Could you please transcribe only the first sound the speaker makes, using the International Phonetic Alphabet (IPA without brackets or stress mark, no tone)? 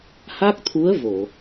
h